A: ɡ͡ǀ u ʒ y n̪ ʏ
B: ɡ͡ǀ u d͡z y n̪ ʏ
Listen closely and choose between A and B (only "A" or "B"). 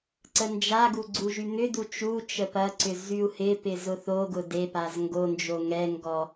A